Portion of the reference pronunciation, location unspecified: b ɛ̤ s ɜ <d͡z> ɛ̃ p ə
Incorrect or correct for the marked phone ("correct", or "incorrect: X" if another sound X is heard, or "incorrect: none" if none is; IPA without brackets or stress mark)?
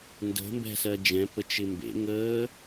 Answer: incorrect: d͡ʒ